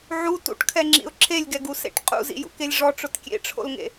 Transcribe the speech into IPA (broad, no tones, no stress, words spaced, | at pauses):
ʕu tṵʈkʰɛŋ͡ǁḭʊ̯ ǁʰelʲɡɛɡusḛʈ qʼṵzḭjṵkelʲ ʐɔʈ͡ʂʊt kʲḛʈ͡ʂʰo̰lŋḛ